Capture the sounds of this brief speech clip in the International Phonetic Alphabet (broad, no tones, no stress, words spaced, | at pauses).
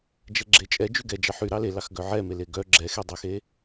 d͡ʒɛɡ͡ǁet͡ʃʼɛ d͡ʒyɡɛ d͡ʒɑħy ɾɑlelɑxɡœ ʕɛmele ɡœ ɡ͡ǁɛxedˤœxe